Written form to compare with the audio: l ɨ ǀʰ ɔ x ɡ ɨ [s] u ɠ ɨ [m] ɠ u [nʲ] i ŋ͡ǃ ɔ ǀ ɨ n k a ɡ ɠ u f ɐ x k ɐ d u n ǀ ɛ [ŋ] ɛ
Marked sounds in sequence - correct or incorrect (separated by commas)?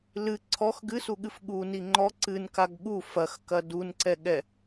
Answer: correct, incorrect, incorrect, incorrect